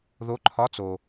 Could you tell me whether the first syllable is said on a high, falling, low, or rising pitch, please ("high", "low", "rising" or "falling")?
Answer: rising